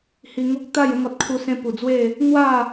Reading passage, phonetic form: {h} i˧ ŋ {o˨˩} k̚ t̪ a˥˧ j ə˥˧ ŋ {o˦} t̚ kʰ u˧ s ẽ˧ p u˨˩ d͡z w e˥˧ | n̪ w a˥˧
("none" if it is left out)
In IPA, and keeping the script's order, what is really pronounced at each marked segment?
h, o˦, ɔ˦

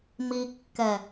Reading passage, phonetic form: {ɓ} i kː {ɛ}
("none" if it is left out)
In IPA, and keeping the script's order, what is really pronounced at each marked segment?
m, ɛ

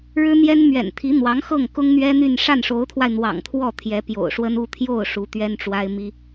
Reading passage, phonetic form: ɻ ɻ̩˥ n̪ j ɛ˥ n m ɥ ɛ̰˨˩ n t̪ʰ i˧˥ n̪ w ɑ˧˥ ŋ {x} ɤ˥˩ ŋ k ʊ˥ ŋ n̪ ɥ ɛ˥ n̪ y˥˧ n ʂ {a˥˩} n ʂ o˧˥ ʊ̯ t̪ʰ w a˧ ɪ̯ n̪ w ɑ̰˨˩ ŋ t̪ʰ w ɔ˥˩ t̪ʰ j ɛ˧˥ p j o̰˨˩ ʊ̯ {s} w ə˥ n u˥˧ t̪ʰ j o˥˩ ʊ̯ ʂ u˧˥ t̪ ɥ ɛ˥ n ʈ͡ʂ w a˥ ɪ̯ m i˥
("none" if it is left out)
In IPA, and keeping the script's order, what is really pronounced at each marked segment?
x, a˥˩, ʂ

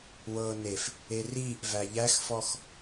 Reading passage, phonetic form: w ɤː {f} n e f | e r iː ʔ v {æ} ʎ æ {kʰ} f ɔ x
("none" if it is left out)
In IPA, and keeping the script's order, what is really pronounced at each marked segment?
none, æ, x

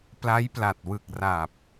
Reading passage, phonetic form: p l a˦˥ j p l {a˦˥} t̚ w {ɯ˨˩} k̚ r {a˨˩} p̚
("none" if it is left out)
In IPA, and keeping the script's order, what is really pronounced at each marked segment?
a˨˩, ɯ˨˩, a˨˩

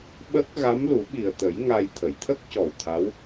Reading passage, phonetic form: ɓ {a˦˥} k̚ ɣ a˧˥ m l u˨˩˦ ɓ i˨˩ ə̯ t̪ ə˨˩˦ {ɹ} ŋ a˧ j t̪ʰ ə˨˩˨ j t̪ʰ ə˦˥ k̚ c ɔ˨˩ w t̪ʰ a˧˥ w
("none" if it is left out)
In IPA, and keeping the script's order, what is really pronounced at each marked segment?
ə˦˥, j

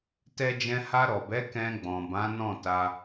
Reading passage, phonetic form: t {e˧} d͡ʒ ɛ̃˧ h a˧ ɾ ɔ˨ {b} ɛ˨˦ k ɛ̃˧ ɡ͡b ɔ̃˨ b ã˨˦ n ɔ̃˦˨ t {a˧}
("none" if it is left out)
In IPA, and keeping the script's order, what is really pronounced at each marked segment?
ɛ˧, b, a˧

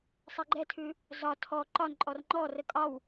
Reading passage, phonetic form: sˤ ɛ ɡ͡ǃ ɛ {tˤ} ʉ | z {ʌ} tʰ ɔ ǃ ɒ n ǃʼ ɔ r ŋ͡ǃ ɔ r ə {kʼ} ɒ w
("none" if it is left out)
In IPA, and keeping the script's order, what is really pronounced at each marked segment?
tʰ, ɒ, kʼ

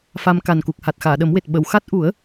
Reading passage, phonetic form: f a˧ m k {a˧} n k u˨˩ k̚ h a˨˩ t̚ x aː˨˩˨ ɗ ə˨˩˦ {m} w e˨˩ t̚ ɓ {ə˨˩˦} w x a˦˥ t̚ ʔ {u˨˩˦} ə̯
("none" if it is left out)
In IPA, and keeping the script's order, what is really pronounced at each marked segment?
a˨˩, m, ə˨˩˨, u˨˩˦

